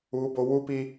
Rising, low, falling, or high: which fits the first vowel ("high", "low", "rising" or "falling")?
high